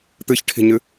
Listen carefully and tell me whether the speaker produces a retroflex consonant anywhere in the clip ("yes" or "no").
yes